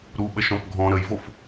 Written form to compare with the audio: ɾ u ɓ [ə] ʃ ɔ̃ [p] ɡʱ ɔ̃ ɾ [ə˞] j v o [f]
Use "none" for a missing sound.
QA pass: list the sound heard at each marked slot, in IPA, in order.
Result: ə, p, ə, f

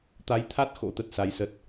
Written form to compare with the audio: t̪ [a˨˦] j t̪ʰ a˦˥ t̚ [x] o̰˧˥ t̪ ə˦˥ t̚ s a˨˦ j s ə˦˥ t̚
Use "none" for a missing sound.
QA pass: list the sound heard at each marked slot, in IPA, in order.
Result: a˨˦, x

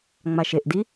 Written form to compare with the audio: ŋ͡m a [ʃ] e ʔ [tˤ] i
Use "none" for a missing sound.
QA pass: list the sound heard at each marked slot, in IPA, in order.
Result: ʃ, d

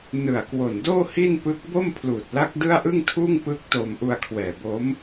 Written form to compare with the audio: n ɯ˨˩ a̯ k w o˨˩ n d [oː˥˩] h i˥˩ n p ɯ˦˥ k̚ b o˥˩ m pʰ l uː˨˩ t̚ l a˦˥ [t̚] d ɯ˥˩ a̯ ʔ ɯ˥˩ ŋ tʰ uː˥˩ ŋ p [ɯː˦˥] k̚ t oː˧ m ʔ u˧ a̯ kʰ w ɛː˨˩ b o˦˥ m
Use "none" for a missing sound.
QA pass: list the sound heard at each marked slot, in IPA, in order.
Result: oː˥˩, k̚, ɯː˦˥

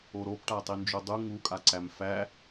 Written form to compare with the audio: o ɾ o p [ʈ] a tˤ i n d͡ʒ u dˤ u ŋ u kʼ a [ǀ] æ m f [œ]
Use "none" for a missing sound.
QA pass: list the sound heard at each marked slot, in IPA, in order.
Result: ʈ, ǀ, æ

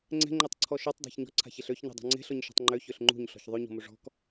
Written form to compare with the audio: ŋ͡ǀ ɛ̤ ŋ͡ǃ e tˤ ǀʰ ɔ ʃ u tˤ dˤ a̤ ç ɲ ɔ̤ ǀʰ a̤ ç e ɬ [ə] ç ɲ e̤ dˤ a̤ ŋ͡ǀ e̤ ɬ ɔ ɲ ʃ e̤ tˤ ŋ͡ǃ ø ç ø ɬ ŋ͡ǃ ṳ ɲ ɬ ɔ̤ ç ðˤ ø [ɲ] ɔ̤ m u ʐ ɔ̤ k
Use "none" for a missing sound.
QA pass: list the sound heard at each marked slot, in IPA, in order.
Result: ø, ɲ

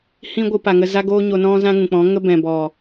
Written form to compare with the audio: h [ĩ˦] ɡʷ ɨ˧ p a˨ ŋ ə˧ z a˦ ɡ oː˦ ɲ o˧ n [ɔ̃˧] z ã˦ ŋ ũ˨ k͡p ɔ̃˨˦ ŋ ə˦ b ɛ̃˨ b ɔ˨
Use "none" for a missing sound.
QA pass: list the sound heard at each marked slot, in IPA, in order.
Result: ĩ˦, ɔ̃˦

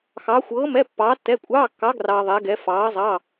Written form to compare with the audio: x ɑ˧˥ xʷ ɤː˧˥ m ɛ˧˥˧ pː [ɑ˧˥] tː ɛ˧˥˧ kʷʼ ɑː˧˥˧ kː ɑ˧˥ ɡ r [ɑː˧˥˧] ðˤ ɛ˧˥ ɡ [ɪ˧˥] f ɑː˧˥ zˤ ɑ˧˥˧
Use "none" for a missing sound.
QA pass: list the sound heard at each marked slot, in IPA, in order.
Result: ɑː˧˥, ɑː˧, ɛ˧˥

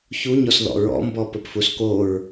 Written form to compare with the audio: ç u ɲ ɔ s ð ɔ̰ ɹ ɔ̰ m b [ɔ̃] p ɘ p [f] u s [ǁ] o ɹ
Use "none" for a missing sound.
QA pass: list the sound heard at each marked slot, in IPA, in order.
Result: ɔ, f, k

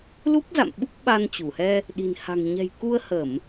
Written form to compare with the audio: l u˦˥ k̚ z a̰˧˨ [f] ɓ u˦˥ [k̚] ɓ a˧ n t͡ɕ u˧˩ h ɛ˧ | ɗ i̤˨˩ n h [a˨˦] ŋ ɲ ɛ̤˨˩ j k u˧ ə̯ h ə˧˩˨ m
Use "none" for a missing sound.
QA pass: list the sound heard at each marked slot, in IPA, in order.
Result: m, k̚, a̤˨˩

